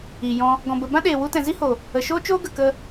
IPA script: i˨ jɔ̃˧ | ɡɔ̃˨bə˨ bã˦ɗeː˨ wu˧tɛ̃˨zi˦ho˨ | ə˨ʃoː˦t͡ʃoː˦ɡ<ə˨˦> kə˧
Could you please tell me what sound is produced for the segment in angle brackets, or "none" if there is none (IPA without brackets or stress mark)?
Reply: ə˨